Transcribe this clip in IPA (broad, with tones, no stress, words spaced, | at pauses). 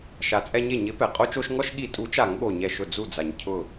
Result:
ʃa˨˥t͡sʼɛ˦ɲe˥˩ ɲɪ˨˥pɛ˩ qʼo˦t͡ʃo˦ʃ ŋɔ˦ʃɠi˧˩˧ tʼu˨˥t͡ʃa˧˩˧ŋ ɠo˧˩ɲɛ˧˩ʃʊ˧˩ d͡zu˧˩d͡za˩ɲ cʰʊ˧˩